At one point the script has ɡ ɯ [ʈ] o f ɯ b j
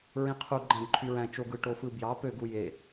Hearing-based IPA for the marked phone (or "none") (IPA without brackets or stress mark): ʈ